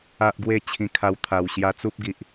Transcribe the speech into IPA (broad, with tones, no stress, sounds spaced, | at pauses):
a˦ ʔ ɡ w e˥˧ t͡ɕʰ ĩ˧ kʰ a˧ w t̪ʰ a˨˩ w ɕ j a˧ t͡s u˦ p̚ ɡ i˨ ʔ